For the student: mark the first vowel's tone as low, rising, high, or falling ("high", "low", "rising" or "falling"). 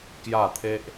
falling